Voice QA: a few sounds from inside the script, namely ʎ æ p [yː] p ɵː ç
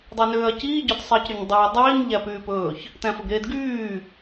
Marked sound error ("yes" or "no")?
no